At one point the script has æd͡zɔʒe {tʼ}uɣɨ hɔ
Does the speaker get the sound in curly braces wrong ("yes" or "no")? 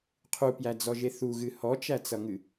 yes